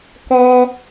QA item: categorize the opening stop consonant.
plain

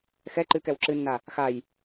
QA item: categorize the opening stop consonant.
click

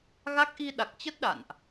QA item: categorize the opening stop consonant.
plain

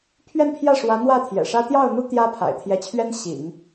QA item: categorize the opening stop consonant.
aspirated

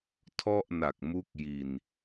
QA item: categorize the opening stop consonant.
aspirated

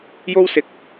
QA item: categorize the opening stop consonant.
plain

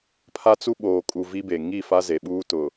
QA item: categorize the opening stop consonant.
aspirated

